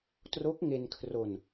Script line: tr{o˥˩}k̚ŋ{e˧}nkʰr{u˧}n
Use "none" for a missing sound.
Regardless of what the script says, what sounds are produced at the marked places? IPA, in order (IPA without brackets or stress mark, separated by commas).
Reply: o˦˥, e˧, o˧